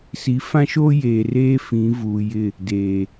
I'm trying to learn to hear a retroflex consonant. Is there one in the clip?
no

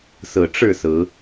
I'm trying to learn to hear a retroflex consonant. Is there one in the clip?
yes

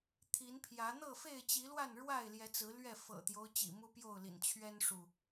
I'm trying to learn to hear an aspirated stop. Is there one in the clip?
yes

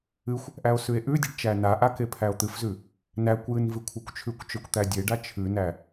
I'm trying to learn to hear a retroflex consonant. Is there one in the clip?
yes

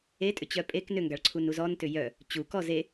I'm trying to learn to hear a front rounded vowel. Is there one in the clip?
yes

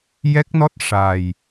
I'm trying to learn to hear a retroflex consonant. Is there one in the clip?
yes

